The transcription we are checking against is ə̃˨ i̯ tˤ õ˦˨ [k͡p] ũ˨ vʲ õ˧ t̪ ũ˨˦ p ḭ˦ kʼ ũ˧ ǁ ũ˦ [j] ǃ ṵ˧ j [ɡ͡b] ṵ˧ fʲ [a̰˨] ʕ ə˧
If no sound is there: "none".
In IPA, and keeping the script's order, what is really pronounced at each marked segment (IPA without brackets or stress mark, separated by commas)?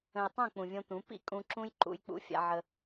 k͡p, j, k͡p, a̰˧